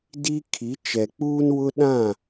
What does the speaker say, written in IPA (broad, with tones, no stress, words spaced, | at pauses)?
di˦kʰi˨˦ t͡ʃɛ˨k͡puː˦nwʊ˦ ɗã˦˨